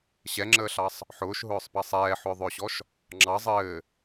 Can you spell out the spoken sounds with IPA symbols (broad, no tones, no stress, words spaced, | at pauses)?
ɕɛŋ͡ǁəːɬɑsˤ | ħʊːʃɦʊːsˤpɑsˤ ɛːħʊːðˤʊːɕɔʃ | ŋ͡ǁɑ zˤɘː